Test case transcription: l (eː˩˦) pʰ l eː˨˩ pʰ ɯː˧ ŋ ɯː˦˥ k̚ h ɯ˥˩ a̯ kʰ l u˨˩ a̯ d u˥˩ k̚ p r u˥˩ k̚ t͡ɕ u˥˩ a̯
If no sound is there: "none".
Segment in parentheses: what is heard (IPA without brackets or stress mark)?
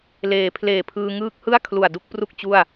eː˩˦